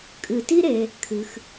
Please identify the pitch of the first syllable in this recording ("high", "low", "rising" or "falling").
low